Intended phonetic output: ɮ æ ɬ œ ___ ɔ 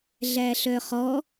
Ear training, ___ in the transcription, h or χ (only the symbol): χ